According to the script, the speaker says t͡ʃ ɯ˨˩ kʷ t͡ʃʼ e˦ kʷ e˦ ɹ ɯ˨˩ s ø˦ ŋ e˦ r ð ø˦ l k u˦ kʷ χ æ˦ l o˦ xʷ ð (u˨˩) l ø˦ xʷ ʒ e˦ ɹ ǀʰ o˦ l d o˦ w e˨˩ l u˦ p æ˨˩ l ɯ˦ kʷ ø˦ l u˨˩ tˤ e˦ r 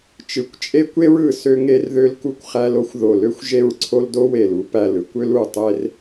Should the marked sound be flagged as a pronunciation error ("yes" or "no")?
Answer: yes